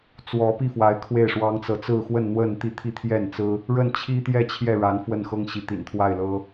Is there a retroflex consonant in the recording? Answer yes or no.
yes